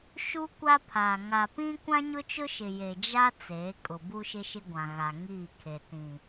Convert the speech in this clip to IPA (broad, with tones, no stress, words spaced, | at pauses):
ʃu˦ kʷa˦pʰa˨ ŋa˨pĩ˦ kʷã˦ɲʊ˦t͡ʃʊ˦ʃɪ˨ je˨d͡ʒa˦ t͡seː˨˦kʼʊ˨ bu˦ʃɪ˦ʃɪ˦ ɡʷã˨ɣa˨ ŋiː˦˨ kʰe˨ tĩ˨